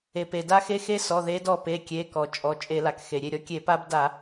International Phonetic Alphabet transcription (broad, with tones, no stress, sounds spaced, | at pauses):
e˩ p e˩ d a˦ x e˦ x e˦ s ɔ˩˧˩ ð e˨˦ d ɔ˧˩ p e˩˧˩ kʲ e˩˧˩ k ɔ˩ t͡ʃʼ ɔ˩˧˩ t͡ʃʼ e˧˩˧ l a˩ k x e˩ ɾʲ e˧˩ ɾʲ ɔ˨˦ kʲ e˧˩˧ p a˦ b d a˧˩˧